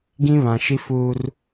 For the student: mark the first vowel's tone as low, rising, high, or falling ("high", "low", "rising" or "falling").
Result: high